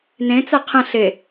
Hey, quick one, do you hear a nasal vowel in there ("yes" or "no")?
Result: yes